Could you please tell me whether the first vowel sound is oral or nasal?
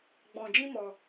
nasal